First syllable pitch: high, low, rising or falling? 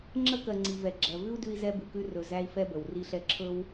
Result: high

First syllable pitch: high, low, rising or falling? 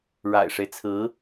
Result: low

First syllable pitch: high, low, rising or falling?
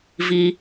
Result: low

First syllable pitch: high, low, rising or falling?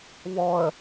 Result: low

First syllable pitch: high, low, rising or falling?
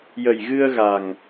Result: low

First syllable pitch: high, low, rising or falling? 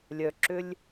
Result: low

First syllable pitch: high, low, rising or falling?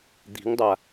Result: rising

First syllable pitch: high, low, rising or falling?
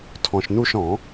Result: low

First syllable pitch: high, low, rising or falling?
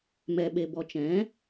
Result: low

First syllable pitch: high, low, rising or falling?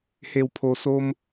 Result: low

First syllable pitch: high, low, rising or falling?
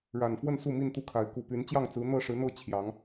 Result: low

